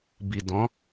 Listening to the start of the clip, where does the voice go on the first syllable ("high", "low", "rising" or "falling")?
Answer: low